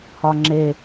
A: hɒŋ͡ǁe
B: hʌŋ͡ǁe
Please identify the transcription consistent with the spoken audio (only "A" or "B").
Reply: A